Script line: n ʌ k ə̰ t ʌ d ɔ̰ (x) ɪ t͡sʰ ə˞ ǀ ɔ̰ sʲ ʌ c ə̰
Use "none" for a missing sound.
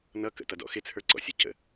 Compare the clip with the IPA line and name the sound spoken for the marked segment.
x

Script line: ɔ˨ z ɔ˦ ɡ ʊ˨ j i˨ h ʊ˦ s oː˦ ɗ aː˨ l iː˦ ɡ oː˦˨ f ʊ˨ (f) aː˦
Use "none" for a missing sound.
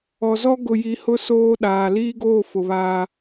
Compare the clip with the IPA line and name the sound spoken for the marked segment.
β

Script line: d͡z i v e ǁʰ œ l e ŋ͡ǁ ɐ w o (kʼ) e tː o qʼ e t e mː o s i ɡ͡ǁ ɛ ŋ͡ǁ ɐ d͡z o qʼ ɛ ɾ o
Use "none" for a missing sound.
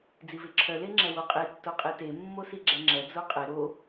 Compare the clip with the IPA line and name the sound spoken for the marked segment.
qʼ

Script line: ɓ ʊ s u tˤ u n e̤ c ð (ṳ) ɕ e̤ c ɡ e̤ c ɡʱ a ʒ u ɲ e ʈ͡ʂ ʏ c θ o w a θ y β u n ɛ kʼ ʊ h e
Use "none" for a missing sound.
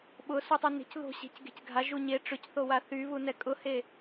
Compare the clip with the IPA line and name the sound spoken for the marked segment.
o̤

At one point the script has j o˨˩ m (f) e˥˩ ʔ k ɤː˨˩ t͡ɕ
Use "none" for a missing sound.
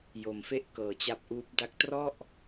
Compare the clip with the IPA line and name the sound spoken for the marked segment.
f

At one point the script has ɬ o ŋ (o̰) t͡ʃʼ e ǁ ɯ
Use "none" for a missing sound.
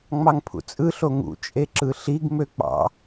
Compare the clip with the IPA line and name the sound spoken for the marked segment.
ṵ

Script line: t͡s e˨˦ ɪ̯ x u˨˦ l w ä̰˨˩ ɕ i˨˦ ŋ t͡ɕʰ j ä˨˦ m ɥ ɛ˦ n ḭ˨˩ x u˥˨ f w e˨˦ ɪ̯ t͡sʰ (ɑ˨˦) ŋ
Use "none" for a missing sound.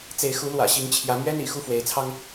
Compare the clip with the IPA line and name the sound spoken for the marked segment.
ɑ˦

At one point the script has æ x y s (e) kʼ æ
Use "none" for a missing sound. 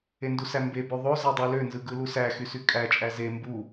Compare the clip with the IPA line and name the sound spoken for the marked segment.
y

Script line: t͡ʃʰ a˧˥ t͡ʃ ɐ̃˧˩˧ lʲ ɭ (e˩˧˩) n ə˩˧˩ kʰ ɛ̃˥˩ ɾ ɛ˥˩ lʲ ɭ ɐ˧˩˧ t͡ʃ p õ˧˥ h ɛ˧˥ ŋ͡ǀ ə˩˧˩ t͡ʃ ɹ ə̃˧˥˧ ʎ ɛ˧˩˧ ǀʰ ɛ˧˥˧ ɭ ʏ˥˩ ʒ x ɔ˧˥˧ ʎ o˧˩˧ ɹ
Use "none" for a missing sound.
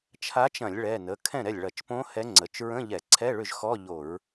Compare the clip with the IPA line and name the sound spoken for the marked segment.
ɛ˩˧˩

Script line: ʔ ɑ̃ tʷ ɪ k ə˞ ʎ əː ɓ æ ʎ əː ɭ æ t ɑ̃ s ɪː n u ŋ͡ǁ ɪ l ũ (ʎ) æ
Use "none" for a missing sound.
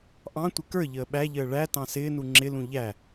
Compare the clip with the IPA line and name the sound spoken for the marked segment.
ʎ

